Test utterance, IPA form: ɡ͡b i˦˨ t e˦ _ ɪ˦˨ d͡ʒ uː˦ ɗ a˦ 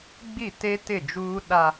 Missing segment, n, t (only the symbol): t